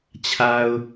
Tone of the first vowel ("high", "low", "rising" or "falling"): low